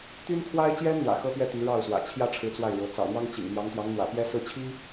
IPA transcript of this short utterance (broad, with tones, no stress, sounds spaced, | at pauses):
t̪ y˥ n kʰ w a˥ ɪ̯ t͡ɕ j ɛ˥ n n̪ w ä̰˨˩ x ɤ˥ t̪ ɥ ɛ˥ t̪ y˧˥ ɻ ɑ˥˩ ʊ̯ s w ä̰˨˩ t͡ɕʰ j ä˥ ʈ͡ʂʰ ɻ̩˧˥ t͡s w a˥˩ ɪ̯ ɻ ɤ˧˥ t͡s ɑ̰˨˩ ʊ̯ n̪ w ɑ˥ ŋ t͡ɕ ḭ˨˩ ŋ n̪ j ɑ˧˥ ŋ t̪ j ɑ˧˥ ŋ n̪ w ä̰˨˩ p j ɛ˥ s ɹ̩˥˩ t͡ɕʰ i˥